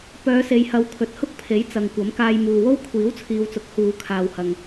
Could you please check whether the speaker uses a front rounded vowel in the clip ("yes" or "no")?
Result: yes